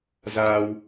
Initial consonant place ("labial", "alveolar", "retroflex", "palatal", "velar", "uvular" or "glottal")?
alveolar